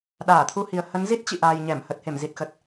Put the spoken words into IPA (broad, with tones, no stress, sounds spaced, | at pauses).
ɗ aː˧˩ t̪ʰ u˧ h i˨˩ ə̯ h ə˨˦ n z i˦˥ t̚ t͡ɕ ḭ˧˨ ʔ aː˨˩ j ɲ ɛ˧˩ m h ə˨˩ t̚ h e˧˩ m z i˨˩ t̚ x ə˨˩ t̚